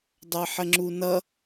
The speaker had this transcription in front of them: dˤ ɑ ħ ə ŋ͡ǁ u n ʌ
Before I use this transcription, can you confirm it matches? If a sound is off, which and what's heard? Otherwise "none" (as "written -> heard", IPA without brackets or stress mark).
none